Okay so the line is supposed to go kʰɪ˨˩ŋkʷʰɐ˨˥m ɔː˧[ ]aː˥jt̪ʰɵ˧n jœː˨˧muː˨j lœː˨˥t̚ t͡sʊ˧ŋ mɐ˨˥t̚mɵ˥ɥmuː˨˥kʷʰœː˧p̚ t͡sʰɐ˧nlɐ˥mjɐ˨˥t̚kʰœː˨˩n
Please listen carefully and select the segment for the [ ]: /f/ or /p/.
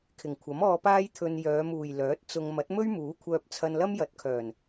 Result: p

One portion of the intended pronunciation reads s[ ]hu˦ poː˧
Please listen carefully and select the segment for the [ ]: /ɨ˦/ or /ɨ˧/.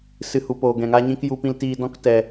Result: ɨ˦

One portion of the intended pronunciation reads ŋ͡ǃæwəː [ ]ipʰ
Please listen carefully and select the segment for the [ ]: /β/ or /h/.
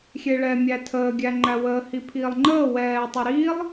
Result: h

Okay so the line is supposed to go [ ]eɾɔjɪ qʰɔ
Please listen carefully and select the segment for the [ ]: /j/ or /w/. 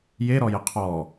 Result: j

